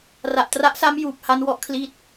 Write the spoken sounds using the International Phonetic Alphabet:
r a˨˩ ʔ t r a˦˥ ʔ s a˦˥ m j uː˨˩ p̚ h a˦˥ n w ɔ˥˩ ʔ kʰ l i˦˥ t̚

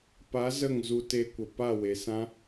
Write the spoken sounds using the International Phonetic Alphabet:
p a˨˦ z ə˦˨ ŋ z u˧ t e˧ kʷ ə˨ p a˦˨ w e˨ s ã˦

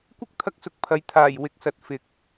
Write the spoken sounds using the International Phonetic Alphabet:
kʷ ɪ˥ k̚ t̪ʰ ɐ˥ k̚ s ʊ˧ k̚ pʰ ɐ˨ j t̪ʰ aː˨˩ j w ɪ˨˥ k̚ s ɐ˨ t̚ f ɪ˨˥ k̚

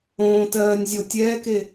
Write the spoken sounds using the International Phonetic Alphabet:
õː t ɜː nʲ zʲ o tʲ ɛː k e

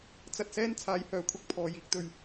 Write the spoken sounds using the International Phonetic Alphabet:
t͡s ɐ˧ t̚ s ɛː˥ n t͡sʰ aː˨˧ j h œː˨˥ kʷʰ ɐ˨ k̚ pʰ ɔː˨ j iː˨˥ k̚ t̪ ɵ˨ ɥ

